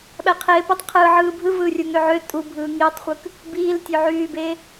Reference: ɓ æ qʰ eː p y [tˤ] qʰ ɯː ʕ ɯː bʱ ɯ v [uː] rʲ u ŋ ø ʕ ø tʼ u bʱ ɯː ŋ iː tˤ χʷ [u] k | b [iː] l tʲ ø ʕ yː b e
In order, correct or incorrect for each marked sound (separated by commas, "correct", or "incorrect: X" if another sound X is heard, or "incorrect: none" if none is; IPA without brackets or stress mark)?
correct, incorrect: ɯː, incorrect: ɯ, correct